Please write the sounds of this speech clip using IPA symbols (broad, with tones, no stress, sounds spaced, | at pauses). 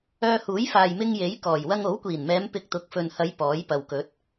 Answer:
œː˧ h uː˨˥ j f aː˨ j m ɪ˧ ŋ j e˨˥ j k ɔː˨˩ j w ɐ˧ ŋ o˨˥ w kʷ iː˨˩ n m ɛː˨˧ m p ɪ˧ k̚ t̪ ʊ˨˥ k̚ f ɵ˨ n h ɐ˨˧ j p ɔː˨˥ j p ɐ˨ w k ɵ˨˥ t̚